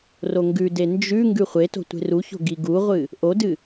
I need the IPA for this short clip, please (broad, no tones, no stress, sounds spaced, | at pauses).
r o ŋ ɡ ʉ d e n d͡ʒ ʉ ŋ ɡ ʉ χʷ e t o̤ tʷ e̤ r u ç o̤ ɡ i ɡ u ʁʷ ɨ | ʔ o d ɨ